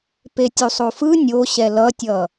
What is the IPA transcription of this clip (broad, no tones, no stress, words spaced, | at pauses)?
petʲusˤofɯ nʲoɕɛ lʌtʲʌ